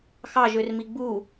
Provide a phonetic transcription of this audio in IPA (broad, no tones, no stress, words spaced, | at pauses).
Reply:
xɑʒørmi ɡ͡bu